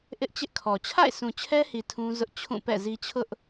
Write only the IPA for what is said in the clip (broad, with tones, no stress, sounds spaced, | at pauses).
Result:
ʔ ɪ˦ ʔ t͡ɕ ɪ˦ ʔ kʰ ɔ˨ t͡ɕʰ a̰˦˨ ɪ̯ s ũ˨ t͡ɕʰ ɛ˦ h i˨ tʰ ũ˦ z ʊ˦ ʔ t͡ɕʰ ũ˦˨ p ɛ̰˦˨ z i˦ t͡ɕʰ ʊ˦ ʔ